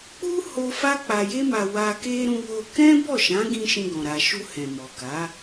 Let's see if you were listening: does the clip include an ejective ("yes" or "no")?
no